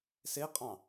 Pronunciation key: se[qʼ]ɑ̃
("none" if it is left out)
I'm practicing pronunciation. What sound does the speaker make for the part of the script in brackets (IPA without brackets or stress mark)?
qʼ